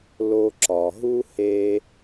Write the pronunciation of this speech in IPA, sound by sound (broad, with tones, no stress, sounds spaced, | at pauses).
l o˧ ǁ ɒ˩ ɦ u˥ h e˥